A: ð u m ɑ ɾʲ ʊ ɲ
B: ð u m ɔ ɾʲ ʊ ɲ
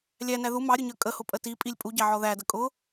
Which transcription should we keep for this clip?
A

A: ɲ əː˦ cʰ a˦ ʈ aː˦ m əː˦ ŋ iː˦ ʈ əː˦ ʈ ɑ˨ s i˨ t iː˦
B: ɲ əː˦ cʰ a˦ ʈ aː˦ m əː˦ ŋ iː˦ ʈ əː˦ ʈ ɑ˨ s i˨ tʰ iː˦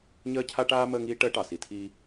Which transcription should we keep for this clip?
B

